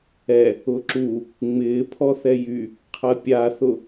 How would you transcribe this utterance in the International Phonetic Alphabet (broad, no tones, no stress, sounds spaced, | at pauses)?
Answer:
ɛ | ʊ ǁ u | ŋ͡m ɪː pʰ ɔ θ ɛ j y | qʰ ɐ pʲ a θ ʊ